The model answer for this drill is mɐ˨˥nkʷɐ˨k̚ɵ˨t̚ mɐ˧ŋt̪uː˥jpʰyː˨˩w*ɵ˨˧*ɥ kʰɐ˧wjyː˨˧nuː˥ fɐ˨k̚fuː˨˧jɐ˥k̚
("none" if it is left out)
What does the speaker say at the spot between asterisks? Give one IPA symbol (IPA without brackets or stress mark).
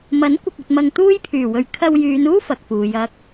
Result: ɵ˨˧